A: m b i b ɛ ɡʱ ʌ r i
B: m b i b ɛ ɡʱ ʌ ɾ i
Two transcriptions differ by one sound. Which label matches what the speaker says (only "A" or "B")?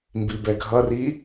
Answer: A